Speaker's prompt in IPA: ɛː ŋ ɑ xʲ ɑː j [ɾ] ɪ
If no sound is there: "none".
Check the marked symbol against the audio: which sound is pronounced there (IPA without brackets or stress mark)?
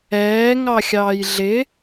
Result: ɮ